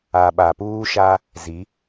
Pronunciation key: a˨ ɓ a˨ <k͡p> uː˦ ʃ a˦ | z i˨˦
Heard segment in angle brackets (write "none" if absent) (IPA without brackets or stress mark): p